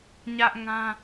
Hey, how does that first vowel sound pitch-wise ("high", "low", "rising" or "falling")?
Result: high